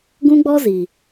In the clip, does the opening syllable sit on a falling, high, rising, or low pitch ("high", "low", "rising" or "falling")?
high